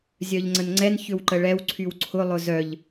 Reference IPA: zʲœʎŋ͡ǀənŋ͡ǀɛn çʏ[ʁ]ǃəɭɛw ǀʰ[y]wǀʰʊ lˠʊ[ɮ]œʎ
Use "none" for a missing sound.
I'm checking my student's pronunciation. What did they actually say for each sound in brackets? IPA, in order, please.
w, y, z

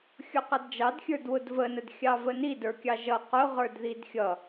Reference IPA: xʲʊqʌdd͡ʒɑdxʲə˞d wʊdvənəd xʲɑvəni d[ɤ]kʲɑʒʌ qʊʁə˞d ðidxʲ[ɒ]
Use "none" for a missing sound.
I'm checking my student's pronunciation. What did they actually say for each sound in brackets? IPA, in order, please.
ə˞, ʌ

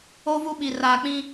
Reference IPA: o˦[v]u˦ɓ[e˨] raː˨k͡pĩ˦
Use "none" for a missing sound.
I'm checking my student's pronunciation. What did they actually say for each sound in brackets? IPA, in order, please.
v, i˨

